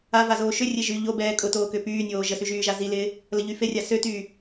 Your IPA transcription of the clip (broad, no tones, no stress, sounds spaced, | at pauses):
a v a z oː ʃ ʏ rʲ e ʒ y ʎ o b ɛː kʼ ʊ t oː k ʏ p yː nʲ oː ʒ ə s y ʒ yː ʒ a z i l ɪː | l ə ʎ y f e rʲ a s ø t yː